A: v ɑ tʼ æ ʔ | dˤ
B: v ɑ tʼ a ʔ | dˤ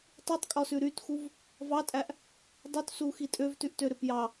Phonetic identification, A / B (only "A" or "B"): A